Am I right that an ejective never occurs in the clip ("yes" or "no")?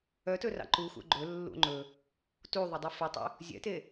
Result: yes